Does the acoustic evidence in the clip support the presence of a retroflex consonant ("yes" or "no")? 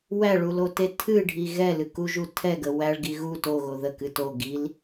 yes